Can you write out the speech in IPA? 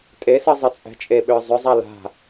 tʼesɯ zˤɯt͡sʼæ̤t͡ʃʼeɓʏː zˤʏzˤa la̤

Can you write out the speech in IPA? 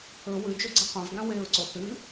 ɵ wʉd͡ʒoɡ͡ǀɐ qʷãvɡã weɹǀo θɨ

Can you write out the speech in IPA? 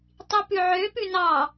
tˤipʉʕøpʉ nɑ

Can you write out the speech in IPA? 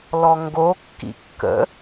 lɔŋɡokːḭ kːə̰

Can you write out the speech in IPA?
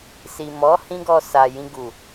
si˨mɔ˨˦ hĩ˦ɡɔ˧ sa˨ jĩ˧ɡu˨

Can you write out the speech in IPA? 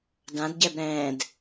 dãdɟɛb ɾɛ̃ːd

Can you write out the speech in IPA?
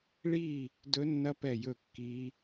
ɭiː˦˨ | dɵ˦˥nːɐ˦˥pɛ˦˨jɵ˦˨ kːiː˦˥

